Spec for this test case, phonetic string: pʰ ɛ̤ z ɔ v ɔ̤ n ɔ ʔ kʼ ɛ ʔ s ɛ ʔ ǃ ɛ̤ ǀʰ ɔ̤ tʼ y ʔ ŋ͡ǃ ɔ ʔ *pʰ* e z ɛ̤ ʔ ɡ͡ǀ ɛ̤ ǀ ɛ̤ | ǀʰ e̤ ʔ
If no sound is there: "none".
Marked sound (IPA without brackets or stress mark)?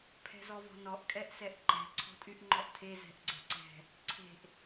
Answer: tʰ